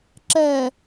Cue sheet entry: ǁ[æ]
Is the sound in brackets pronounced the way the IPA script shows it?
no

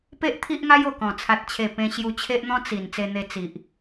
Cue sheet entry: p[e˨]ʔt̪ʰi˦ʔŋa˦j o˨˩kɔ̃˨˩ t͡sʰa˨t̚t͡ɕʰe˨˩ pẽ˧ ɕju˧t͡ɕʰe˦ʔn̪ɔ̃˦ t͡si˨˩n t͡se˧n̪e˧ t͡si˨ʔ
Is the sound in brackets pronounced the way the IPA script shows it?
no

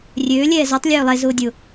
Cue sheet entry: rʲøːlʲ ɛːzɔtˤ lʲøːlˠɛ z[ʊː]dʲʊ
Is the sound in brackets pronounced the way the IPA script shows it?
yes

